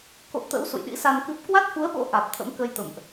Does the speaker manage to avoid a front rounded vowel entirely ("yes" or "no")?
yes